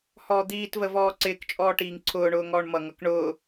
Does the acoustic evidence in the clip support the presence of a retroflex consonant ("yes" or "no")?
yes